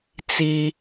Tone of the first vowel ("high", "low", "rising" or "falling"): high